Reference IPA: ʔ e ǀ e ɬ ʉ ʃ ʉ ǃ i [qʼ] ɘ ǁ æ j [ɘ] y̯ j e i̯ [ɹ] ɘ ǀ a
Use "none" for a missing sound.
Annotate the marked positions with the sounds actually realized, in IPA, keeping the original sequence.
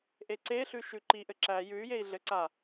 ʔ, ʉ, ɮ

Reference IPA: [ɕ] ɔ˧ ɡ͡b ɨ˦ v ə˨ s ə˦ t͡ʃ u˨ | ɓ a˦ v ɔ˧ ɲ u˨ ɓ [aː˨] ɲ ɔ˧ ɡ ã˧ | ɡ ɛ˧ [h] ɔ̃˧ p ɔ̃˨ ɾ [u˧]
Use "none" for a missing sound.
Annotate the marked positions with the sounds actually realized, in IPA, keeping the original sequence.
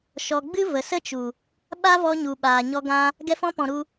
ʃ, aː˨, f, u˧

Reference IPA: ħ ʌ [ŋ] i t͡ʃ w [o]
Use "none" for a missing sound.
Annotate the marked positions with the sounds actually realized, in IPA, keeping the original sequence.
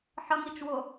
ŋ, o

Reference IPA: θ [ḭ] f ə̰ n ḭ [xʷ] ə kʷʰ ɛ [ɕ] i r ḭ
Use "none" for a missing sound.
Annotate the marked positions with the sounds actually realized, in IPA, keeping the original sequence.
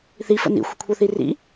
i, xʷ, θ

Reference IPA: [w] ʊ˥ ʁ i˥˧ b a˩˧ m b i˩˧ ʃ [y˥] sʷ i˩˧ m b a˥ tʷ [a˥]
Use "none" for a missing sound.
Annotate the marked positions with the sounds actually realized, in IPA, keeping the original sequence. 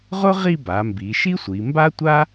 ʁ, i˥, a˥

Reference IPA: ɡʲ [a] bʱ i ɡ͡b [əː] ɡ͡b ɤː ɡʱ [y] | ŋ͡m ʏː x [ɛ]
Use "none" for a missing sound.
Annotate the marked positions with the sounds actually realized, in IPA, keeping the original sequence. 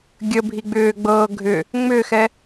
ə, ʏː, ʏ, ɛ

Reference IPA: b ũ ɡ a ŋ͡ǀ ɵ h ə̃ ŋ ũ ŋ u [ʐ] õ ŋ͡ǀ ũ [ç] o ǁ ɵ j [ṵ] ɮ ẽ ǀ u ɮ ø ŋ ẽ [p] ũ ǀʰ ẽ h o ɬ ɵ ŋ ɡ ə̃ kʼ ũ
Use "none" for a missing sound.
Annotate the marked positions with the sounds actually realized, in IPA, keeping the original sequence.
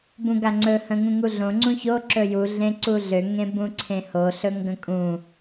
ɮ, ç, u, b

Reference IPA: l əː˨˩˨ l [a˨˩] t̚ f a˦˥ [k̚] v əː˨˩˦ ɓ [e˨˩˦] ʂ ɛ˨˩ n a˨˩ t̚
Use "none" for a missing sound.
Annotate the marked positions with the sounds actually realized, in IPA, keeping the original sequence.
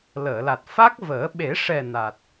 a˨˩, k̚, e˨˩˦

